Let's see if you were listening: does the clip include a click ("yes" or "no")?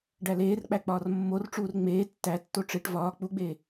no